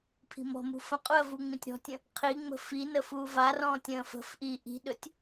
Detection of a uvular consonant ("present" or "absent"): present